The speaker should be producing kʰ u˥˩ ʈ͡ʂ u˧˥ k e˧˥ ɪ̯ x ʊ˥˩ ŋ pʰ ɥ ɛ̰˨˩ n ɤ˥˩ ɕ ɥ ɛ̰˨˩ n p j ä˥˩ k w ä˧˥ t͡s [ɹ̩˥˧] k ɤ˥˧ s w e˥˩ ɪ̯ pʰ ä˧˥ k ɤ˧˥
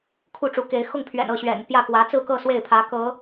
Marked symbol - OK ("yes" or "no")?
yes